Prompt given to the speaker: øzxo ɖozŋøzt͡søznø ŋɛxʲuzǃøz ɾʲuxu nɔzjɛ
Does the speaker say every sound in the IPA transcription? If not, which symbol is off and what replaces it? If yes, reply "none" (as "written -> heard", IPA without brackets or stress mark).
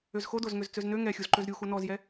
ɖ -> d